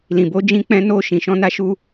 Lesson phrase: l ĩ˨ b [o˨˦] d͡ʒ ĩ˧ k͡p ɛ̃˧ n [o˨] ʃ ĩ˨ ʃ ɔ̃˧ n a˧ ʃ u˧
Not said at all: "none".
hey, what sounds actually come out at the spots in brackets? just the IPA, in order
o˨˦, o˧

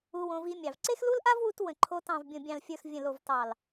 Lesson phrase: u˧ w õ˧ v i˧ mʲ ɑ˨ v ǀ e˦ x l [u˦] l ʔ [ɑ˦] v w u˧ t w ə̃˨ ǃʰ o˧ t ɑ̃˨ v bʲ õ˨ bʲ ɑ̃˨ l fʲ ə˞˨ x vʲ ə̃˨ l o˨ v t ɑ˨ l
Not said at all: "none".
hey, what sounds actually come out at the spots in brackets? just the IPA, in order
u˦, a˦

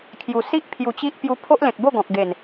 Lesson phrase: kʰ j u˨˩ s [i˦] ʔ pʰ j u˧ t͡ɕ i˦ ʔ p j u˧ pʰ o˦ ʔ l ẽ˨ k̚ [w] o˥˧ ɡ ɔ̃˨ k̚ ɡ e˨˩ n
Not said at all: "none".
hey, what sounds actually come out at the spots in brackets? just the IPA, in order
i˦, b

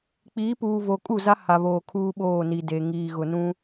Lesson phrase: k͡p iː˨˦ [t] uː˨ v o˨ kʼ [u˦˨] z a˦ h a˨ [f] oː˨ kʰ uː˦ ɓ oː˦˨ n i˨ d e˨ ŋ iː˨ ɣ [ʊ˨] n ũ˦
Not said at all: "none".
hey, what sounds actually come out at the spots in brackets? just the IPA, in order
p, u˦˨, β, ʊ˨

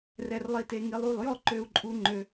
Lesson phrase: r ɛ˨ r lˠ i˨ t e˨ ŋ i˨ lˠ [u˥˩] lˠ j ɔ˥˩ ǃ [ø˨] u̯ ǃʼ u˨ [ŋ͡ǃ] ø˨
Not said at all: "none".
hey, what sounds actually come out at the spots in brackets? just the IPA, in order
u˥˩, ø˨, ŋ͡ǃ

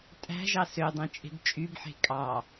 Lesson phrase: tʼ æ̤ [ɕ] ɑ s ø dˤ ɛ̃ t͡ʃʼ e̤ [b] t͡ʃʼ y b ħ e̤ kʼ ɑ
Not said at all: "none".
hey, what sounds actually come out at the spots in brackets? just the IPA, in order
ʒ, b

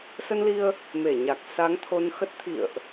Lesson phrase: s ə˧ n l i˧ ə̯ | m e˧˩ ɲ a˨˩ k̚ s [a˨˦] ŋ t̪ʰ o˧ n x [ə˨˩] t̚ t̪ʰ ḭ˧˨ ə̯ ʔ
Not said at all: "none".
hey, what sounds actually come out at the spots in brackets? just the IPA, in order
a˨˦, ə˦˥

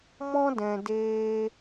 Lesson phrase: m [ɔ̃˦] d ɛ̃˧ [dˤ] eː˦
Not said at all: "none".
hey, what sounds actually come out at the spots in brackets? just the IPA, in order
ɔ̃˦, d

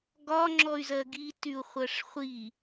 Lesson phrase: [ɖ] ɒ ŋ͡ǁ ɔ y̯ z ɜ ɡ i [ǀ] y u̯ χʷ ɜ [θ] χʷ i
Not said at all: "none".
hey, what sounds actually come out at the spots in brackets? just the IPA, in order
ɡ, t, ʂ

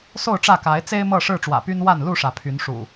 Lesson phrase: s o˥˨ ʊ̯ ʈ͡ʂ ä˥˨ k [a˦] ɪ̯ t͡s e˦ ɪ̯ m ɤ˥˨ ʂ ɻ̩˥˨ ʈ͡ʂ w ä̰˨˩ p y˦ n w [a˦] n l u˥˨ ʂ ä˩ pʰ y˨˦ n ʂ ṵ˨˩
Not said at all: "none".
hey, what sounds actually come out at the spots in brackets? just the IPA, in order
a˨˦, a˥˨

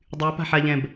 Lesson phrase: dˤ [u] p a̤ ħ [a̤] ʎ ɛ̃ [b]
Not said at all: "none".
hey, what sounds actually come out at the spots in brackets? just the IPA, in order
y, a, b

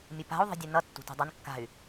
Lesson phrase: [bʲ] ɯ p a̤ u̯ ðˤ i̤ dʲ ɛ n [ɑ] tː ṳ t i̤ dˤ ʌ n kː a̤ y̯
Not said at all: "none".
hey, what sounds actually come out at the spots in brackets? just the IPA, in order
mʲ, ʌ

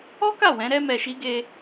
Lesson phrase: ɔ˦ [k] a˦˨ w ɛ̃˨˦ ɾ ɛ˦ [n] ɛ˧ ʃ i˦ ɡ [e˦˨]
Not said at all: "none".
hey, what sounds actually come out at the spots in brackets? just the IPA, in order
k, m, e˦

